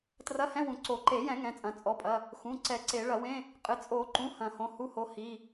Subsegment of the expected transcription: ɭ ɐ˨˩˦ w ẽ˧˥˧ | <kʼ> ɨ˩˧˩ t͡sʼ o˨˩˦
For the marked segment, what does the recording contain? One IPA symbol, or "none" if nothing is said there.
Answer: qʼ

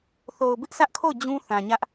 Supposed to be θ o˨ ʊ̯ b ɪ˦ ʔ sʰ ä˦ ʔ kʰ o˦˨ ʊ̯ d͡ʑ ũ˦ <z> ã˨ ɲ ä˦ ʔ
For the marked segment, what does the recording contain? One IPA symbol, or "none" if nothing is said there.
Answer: θ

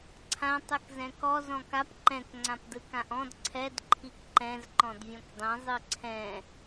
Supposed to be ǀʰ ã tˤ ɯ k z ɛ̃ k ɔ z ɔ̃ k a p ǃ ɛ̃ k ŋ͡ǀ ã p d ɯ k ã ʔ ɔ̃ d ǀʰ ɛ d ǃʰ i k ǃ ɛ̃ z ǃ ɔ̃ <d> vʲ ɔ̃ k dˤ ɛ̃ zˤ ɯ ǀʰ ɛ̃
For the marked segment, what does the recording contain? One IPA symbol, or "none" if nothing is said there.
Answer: d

